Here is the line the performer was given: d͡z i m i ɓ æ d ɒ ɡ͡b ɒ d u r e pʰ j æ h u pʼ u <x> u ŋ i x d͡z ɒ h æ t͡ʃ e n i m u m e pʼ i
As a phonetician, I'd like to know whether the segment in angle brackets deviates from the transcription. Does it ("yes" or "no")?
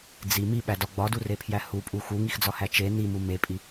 no